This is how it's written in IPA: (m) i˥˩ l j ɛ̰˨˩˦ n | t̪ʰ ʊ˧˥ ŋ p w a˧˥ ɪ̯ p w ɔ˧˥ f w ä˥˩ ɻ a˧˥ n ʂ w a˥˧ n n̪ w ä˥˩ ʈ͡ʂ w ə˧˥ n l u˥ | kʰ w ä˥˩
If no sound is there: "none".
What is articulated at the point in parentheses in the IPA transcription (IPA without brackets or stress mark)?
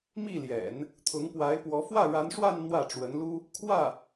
m